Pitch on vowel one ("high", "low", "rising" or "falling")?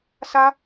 high